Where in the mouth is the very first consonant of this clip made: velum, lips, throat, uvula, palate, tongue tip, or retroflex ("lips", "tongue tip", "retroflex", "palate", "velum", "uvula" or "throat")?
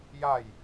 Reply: palate